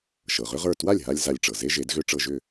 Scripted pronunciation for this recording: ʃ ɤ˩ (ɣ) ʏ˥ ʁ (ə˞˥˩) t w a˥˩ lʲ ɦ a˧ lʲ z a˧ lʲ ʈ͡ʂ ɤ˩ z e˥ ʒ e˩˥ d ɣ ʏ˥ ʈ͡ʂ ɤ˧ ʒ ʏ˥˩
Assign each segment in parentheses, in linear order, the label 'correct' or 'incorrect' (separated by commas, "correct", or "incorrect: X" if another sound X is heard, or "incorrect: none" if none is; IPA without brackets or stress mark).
incorrect: ʁ, correct